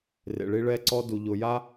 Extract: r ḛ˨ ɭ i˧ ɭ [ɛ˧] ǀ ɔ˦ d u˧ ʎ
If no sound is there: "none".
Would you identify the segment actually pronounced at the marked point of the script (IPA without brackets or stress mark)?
ɛ˧